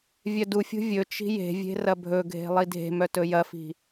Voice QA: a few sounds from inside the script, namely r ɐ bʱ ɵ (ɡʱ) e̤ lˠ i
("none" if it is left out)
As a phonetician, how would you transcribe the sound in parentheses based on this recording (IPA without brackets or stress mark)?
ɡʱ